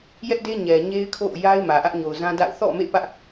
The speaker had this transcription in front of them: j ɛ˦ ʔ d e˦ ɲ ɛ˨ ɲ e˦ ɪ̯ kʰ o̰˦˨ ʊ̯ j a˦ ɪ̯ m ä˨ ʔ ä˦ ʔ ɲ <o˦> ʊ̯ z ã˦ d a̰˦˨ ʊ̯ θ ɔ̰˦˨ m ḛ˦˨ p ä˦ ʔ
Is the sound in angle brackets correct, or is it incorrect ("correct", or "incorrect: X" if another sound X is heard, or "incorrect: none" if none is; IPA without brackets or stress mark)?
incorrect: o˨